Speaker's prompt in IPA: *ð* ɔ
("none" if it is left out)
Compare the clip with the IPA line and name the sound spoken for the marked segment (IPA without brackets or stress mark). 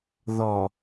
ð